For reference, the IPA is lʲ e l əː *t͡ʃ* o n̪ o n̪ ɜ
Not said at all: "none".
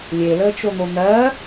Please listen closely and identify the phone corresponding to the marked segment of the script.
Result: t͡ʃ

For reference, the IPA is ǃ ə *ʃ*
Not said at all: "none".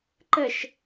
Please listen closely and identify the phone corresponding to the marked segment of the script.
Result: ʃ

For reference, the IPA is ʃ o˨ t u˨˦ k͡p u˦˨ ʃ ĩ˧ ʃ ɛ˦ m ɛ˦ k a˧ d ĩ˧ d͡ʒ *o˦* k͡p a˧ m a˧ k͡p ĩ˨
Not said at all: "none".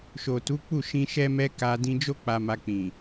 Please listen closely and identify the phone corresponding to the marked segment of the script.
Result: o˦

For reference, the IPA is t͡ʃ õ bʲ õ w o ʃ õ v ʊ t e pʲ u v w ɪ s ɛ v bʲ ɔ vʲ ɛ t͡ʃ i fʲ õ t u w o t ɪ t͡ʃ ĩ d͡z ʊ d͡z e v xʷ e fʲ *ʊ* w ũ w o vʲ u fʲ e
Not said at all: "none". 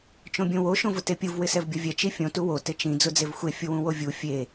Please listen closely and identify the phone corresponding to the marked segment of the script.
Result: ʊ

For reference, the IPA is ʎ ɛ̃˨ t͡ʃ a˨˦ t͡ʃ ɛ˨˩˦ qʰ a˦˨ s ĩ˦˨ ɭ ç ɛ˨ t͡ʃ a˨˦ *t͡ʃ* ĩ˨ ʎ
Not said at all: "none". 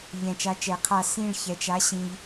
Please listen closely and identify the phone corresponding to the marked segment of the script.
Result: ɕ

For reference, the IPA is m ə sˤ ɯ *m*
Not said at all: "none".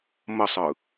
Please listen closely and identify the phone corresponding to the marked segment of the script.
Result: none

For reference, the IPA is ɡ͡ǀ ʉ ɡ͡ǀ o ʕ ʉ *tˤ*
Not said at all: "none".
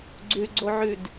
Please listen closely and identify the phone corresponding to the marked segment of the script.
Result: d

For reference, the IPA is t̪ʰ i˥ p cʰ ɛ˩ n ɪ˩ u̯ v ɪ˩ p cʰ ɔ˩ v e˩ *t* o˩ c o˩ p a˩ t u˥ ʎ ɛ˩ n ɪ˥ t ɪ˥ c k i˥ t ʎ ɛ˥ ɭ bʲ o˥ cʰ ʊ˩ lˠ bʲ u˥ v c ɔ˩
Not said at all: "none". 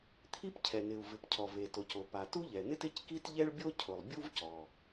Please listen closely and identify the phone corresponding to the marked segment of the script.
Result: t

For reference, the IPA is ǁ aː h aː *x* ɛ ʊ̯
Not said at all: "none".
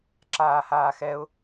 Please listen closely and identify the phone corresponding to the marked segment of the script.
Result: x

